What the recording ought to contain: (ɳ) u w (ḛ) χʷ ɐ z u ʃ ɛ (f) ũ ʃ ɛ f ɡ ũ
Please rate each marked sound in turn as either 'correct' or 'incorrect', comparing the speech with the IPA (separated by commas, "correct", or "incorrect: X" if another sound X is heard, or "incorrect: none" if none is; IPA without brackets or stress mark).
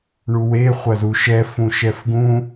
correct, incorrect: e, correct